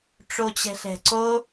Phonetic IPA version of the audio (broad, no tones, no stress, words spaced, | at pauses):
ʈ͡ʂot͡ɕɛ̤ɬɛ̤ǀo